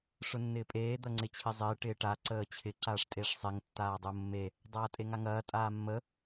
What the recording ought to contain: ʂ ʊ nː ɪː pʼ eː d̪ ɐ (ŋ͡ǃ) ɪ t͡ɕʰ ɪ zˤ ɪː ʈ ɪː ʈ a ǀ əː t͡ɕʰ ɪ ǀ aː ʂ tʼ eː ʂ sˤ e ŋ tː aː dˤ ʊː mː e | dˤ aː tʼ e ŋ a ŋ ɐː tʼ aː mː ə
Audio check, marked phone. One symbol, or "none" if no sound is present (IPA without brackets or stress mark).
ŋ͡ǀ